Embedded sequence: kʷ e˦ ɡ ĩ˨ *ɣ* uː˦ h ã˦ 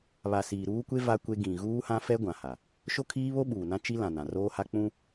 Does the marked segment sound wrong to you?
no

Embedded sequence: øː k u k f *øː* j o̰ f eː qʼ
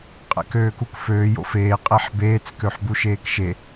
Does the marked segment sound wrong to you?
no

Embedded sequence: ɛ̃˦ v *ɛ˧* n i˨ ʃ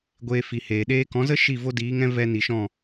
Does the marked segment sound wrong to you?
no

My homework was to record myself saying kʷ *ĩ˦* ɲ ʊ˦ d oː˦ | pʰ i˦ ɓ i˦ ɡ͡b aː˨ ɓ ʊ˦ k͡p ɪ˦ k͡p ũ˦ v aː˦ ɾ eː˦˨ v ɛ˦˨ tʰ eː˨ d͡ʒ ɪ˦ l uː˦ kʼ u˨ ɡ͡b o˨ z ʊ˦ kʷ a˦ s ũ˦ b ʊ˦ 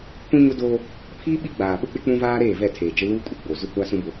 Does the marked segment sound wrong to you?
no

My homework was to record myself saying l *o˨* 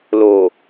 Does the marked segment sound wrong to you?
no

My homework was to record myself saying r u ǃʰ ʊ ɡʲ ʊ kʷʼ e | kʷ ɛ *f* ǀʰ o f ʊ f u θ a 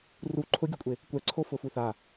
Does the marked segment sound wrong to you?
yes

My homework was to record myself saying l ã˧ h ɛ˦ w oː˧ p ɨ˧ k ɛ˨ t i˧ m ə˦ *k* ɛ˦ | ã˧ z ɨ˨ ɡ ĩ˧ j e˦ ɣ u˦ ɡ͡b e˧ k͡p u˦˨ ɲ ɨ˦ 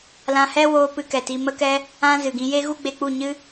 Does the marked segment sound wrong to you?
no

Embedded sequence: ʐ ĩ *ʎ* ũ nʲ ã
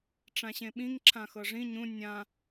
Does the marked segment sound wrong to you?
yes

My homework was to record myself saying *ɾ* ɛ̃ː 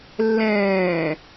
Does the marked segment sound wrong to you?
yes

